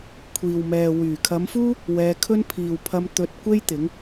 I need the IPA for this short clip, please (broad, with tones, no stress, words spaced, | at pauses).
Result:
kʷʰiː˨wmɛː˨ wyː˨˩ kʰɐ˨˧mfuː˥ | wɛː˧kʰɵ˥n pʰiː˨wpʰɐ˧m t̪ɵ˧t̚kʷe˥j t̪ɪ˨˥ŋ